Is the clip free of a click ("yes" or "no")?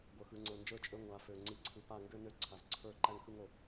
no